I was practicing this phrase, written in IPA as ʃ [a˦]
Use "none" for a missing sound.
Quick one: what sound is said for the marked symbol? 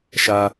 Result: a˦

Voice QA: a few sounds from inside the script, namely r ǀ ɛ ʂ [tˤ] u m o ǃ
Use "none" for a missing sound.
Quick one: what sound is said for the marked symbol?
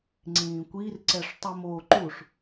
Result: tˤ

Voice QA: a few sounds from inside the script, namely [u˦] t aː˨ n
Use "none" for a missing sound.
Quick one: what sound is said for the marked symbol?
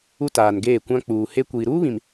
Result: u˦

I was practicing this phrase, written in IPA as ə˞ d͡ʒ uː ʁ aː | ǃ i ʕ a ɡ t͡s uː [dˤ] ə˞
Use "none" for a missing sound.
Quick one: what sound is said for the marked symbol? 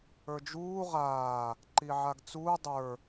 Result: dˤ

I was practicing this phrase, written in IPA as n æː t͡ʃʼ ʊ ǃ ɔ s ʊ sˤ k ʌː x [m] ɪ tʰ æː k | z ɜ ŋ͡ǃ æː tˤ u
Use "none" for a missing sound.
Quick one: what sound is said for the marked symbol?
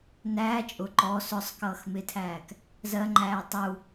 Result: m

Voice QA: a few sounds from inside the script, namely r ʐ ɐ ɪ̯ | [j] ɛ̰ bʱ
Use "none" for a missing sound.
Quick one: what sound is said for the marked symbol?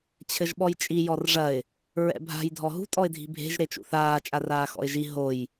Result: ɹ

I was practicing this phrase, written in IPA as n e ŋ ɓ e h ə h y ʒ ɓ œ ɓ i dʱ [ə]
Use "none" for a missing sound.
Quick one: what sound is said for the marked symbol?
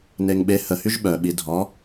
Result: ɔ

